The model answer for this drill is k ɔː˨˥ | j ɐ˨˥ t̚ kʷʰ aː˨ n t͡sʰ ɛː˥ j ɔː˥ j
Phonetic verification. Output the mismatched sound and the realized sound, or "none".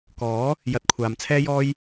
n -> m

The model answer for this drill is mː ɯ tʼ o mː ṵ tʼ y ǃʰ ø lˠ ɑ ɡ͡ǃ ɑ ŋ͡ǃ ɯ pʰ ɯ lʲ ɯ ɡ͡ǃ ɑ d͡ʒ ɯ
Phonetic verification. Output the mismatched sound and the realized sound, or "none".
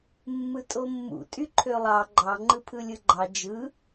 none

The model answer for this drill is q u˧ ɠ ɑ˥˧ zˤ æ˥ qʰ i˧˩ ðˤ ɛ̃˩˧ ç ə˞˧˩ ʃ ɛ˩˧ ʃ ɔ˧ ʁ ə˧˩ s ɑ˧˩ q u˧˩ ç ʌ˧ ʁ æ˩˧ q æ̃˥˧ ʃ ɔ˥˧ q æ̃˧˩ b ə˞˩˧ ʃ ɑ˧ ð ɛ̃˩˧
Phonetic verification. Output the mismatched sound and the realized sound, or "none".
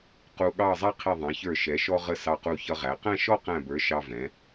ð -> v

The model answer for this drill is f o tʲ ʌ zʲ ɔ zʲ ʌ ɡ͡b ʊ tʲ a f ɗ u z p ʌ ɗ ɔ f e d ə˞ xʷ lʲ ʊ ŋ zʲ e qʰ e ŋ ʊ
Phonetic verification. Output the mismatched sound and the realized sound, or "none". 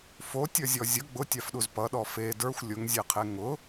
none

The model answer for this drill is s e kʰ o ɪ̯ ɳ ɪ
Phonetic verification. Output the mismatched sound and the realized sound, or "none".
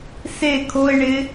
none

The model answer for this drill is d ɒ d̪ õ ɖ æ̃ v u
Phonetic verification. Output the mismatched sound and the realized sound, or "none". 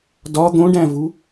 none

